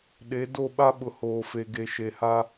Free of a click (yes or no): yes